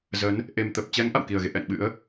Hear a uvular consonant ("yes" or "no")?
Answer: no